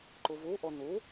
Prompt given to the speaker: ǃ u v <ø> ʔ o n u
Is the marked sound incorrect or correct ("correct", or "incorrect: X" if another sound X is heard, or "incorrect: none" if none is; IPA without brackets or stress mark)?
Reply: incorrect: u